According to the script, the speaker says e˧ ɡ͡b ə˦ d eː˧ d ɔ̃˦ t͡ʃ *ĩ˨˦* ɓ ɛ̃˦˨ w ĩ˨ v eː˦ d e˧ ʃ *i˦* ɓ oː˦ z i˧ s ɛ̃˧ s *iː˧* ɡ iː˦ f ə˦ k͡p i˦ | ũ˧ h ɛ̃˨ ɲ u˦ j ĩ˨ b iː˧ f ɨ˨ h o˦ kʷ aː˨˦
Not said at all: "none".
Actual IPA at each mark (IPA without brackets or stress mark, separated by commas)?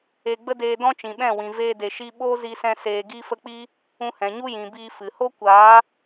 ĩ˨, i˦, eː˧